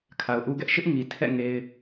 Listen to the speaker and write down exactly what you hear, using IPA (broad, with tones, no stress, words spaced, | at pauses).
kʰa˨ʊ̯ʔu˦ɡɛ˦ʔ ʃɪ˦ʔŋi˨tʰɛ̰˦˨ ŋe˦ɪ̯